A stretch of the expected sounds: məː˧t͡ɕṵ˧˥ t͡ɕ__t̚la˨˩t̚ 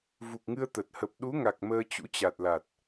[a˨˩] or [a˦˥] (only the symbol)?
a˨˩